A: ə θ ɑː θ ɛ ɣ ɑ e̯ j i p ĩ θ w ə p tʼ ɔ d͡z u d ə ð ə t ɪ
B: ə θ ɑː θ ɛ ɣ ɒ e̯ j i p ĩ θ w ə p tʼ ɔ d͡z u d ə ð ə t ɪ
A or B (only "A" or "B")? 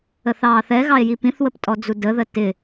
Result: A